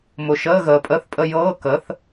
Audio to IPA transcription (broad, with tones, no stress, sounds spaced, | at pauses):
m ʊ˨ ʃ əː˧˥˧ ɣ əː˨ pʼ ə˧˥˧ θ pʼ ə˧˥˧ j ɤː˧˥˧ k əː˩˥ θ